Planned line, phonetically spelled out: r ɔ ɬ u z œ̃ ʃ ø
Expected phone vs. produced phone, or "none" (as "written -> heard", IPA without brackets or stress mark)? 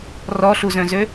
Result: ʃ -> z